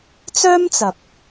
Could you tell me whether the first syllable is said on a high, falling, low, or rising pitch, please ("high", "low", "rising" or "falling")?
high